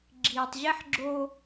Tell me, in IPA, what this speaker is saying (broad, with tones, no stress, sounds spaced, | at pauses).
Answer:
ɡ͡ǁ iː˨ tˤ ʑ e˦ ħ ɡ͡ǁ o˦